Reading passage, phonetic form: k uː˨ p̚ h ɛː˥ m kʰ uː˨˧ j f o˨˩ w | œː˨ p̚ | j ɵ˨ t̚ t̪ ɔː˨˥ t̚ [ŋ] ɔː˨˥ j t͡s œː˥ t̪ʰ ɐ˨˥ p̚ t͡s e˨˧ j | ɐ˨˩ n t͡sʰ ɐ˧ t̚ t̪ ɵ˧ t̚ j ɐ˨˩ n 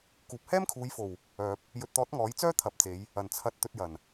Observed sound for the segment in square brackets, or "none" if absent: ŋ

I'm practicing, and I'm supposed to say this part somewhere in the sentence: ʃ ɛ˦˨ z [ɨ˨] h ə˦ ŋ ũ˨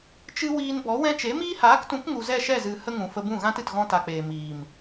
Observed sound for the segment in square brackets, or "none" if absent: ɨ˨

